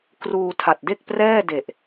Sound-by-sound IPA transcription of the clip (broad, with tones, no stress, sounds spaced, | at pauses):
k r uː˧ tʰ a˨˩ t̚ d e˥˩ k̚ p r ɛː˥˩ d e˨˩ ʔ